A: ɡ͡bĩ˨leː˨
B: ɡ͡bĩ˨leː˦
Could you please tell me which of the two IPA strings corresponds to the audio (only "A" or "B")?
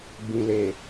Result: A